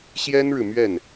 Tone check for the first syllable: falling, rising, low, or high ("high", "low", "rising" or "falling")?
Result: high